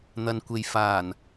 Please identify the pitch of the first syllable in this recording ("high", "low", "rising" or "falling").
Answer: low